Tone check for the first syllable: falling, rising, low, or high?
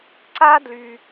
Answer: high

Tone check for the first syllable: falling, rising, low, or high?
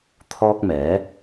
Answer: high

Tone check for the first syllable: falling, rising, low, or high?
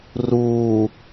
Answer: low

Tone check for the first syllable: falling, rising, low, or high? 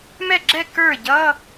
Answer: falling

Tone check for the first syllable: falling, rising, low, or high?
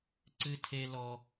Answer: high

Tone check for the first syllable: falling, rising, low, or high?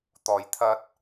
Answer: low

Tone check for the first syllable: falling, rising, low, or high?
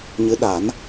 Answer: rising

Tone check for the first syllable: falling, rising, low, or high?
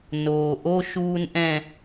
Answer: low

